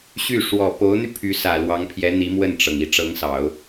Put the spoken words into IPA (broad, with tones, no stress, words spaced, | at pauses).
ɕy˥˩ ʂwɔ˨˩po˧˥ʊ̯n̪y˧ pʰy˧˥sä˨˩ lwɑ˧˥ŋpʰjɛ˧˥n̪i˧˥ mwə˥˩nʈ͡ʂɤ˩ŋ i˧˥ʈ͡ʂɤ˧˥ŋsɑ˨˩˦ʊ̯